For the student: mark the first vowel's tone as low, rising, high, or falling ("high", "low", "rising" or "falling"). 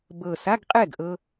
low